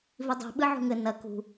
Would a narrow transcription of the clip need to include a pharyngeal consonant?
yes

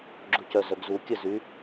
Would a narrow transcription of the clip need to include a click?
yes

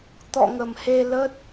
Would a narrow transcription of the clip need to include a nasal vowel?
no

